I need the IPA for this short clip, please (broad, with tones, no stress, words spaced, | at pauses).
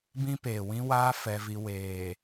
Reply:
bĩ˦ peː˨wĩ˦ waː˦ fɛ˦vi˦ weː˨